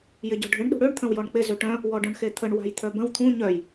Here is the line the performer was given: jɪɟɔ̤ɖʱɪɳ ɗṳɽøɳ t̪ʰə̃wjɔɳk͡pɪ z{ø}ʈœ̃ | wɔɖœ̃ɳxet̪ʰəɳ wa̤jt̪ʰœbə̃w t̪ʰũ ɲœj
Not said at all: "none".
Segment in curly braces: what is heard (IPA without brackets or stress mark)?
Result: ø